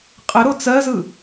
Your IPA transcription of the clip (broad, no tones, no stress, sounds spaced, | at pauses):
qʼ ɘ ɾ o t͡s ɜ z ɯ